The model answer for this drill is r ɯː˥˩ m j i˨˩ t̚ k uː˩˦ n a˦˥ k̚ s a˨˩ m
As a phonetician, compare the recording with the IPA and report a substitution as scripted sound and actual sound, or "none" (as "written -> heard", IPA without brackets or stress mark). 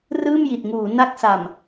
k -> ŋ